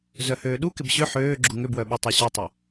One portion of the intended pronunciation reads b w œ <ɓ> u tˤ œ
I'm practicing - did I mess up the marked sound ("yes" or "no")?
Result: no